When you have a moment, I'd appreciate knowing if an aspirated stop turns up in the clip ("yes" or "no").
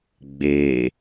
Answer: no